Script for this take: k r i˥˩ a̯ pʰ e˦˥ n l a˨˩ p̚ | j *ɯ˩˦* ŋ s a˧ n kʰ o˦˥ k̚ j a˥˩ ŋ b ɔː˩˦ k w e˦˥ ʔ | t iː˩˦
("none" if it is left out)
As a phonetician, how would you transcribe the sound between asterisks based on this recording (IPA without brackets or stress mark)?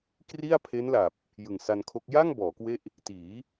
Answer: ɯ˨˩